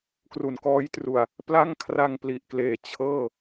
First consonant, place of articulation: velar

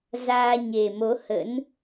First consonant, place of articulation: alveolar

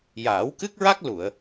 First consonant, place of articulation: palatal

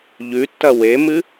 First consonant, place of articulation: palatal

